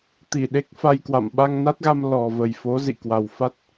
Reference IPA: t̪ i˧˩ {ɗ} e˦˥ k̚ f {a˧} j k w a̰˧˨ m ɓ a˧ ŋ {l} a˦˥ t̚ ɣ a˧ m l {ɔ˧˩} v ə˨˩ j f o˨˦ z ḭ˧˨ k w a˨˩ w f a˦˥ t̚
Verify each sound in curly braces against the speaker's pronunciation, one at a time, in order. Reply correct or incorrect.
correct, correct, incorrect, incorrect

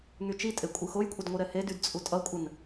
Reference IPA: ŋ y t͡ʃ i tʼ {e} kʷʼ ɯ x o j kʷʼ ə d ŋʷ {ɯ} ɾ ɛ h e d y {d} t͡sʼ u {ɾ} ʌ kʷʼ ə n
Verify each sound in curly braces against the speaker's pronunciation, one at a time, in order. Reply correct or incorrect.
correct, correct, correct, incorrect

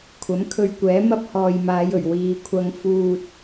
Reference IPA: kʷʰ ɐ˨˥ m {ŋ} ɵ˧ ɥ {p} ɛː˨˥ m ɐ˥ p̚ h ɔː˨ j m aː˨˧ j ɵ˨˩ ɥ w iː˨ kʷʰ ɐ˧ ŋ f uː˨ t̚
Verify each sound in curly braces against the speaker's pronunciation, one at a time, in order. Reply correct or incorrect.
incorrect, incorrect

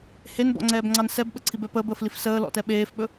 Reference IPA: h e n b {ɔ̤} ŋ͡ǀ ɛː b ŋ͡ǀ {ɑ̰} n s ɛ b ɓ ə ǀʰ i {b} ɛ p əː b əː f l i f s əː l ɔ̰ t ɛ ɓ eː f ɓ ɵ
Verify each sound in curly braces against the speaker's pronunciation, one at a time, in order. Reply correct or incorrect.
incorrect, incorrect, correct

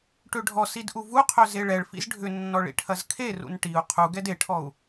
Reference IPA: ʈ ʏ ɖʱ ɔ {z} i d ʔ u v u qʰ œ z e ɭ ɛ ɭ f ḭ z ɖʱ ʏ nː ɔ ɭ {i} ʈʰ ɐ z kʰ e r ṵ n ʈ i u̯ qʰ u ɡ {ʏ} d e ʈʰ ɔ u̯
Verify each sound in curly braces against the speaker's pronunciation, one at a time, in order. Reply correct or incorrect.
incorrect, incorrect, incorrect

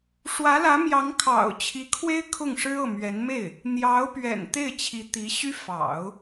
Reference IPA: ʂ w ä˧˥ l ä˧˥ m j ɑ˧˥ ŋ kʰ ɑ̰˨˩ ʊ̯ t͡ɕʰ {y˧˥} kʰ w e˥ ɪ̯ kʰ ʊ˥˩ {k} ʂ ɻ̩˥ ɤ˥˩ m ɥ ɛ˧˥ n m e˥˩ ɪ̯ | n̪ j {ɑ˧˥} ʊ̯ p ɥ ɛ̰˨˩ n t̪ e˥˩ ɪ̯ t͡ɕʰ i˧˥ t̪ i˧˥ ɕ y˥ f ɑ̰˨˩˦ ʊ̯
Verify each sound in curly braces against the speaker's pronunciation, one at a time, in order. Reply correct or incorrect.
incorrect, incorrect, correct

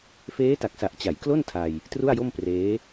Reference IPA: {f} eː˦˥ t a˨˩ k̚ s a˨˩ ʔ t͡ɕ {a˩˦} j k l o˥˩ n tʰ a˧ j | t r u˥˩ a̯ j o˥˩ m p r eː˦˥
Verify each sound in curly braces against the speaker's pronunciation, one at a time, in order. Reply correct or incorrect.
correct, correct

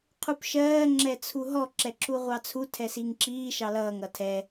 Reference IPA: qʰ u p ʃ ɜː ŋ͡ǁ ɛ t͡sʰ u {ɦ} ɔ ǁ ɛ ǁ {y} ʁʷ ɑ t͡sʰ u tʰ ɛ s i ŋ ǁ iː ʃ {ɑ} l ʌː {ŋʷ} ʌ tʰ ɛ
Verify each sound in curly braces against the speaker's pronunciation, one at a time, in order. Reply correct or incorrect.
correct, incorrect, correct, incorrect

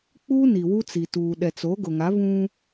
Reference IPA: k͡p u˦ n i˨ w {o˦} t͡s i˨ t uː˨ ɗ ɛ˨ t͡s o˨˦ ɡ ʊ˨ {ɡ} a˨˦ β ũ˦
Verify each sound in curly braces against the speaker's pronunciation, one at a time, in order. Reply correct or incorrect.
incorrect, incorrect

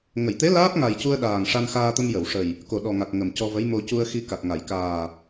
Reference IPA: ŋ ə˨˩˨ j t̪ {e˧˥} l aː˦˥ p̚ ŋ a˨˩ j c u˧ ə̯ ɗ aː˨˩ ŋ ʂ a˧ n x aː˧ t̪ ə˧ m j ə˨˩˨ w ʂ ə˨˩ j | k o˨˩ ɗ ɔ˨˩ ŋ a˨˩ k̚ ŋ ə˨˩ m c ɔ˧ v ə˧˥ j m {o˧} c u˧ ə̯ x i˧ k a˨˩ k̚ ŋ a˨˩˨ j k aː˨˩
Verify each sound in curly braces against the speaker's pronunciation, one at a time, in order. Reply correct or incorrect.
correct, correct

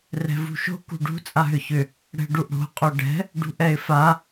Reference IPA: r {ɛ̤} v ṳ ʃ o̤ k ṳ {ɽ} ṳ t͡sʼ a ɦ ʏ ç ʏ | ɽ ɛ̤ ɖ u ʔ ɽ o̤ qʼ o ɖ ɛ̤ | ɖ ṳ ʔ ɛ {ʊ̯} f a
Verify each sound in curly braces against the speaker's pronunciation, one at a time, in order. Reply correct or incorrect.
correct, incorrect, incorrect

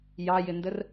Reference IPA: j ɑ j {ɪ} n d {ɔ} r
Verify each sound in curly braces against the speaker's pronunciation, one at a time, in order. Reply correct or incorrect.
correct, incorrect

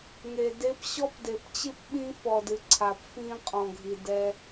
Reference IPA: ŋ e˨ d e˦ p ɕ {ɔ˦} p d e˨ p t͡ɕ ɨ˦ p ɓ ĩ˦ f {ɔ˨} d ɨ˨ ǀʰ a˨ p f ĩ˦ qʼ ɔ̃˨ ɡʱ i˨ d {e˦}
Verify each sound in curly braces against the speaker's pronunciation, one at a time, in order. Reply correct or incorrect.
correct, correct, incorrect

